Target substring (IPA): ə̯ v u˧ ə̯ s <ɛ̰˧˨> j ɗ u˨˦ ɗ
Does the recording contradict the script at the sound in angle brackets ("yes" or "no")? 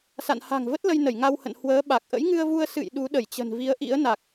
yes